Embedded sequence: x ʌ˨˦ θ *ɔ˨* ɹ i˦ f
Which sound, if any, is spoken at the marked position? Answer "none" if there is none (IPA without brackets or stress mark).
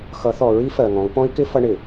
ɔ˨